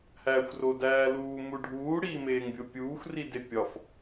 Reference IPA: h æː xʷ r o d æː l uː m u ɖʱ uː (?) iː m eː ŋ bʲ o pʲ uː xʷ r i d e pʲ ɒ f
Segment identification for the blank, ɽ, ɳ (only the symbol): ɽ